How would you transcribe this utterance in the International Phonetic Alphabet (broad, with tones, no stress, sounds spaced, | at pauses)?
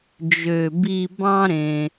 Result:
d͡ʒ ø˩ b i˨ b ɑ̃˦ ɾ ẽ˩